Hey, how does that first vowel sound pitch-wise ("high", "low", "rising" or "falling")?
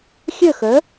falling